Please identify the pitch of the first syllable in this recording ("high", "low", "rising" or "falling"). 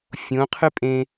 rising